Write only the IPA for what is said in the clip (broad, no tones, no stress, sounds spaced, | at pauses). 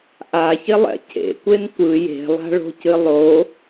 ʔ a ç ɪ lˠ ɛ̰ cʰ ḛ kʷ e n kʷ ɯ j e̤ lˠ a̤ ɭ o̤ c ɨ lˠ o